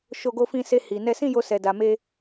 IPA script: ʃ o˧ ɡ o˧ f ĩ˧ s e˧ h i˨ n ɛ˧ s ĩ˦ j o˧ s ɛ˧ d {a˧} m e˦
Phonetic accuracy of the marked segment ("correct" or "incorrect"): correct